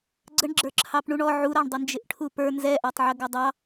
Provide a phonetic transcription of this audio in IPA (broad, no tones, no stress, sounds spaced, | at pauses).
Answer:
ɡ͡ǀ ə ɳ ɡ͡ǁ ə˞ ǁʰ ɑ p ɳ u ɳ ɔ ʕ u ɾ ɑ ɳ dˤ ə n d͡ʒ ɪ ʔ ʈʰ u p ə˞ n z ɛ ʔ ɑ tˤ ʕ ə ɡ ʌ dˤ ɑ